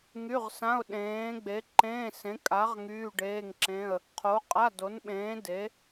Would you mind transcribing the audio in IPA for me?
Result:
ŋ y˧˥˧ ʁ s ã˧˥˧ ʊ̯ ɗ ẽː˨˥ ɡ͡b e˨˥ ǃ ẽː˧˥˧ s ẽ˨˥ kʼ a˨˥ ʁ ŋ yː˧˥˧ ɖ eː˧˥˧ ŋ ǁ ẽ˧˥˧ ə̯ | qʰ o˨˥ qʼ a˧˥˧ d o˨˥ n ɓ ẽː˨˥ d e˨˥

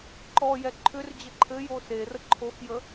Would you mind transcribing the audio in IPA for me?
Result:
ǃ ɔ j ɛ ǃʰ ʏ r d͡ʑ ə ǃʰ ɘ j o s e r ə ǃʰ o x j ə

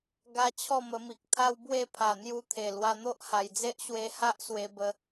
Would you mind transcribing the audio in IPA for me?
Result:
ɡ a˦ t͡ɕʰ ɔ˥˧ m ə˧ m i˨ k̚ t̪ʰ a˦ w b w e˥˧ pʰ a˨˩ n̪ j u˧ t̪ʰ e˨˩ l w a˧ n̪ o˦ ʔ h a˨˩ j d͡z e˦ ʔ ɕ w e˧ h a˦ ʔ s w e˧ b ə˧

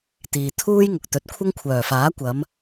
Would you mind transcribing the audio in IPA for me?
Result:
t̪ iː˨ t̪ʰ uː˥ j ŋ ʊ˨ k̚ t̪ ɵ˨˥ t̚ kʷʰ ɐ˥ ŋ kʷʰ œː˨˩ f aː˨˥ kʷ ɐ˨˧ m

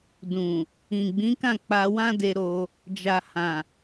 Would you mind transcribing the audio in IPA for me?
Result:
d ũ˨ | ĩ˨ ɡ͡b ĩ˨˦ k ã˦˨ k͡p a˧ w ã˦ d e˧ ɾ o˧ | d͡ʒ a˨ h ã˨

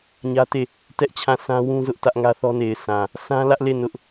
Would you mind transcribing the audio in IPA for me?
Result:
ɲ ä˦ t e˦˨ | t ɛ˦ ʔ t͡ɕʰ ã˦˨ s ã˦ w ũ˦ z ʊ˦ ʔ t ä˦ ʔ ŋ ä˦ θ ɔ˦ n e˨ ɪ̯ sʰ ã˨ | s ã˦ l ä˦ ʔ l e˦˨ n ʊ˦ ʔ

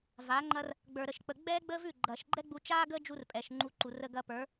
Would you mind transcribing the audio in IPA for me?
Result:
v a˨˦ ŋ͡ǃ ɐ˦ r | ɡ͡b ə˞˧ ɾ ə˦˨ ʃ k͡p ə˧ ɡ͡b ɛː˦ ɡ͡b əː˦ v ʉ˦˨ ɡ͡ǃ ɐː˨ ʃ ɡ͡ǃ ɛ˦ ɡ͡b u˧ t͡ʃ aː˦ ɡ əː˦ d͡ʒ u˧ r pʼ ɛː˨ ʃ ŋ͡ǃ u˨˦ ǃ u˨ r ə˧ ɡ ɐ˧ p ə˞˨˦

